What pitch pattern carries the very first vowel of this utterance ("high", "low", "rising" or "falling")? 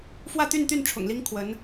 falling